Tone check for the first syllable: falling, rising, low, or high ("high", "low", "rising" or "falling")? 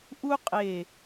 high